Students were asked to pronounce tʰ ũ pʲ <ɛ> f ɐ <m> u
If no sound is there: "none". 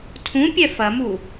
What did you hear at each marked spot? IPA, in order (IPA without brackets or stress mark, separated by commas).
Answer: ɛ, m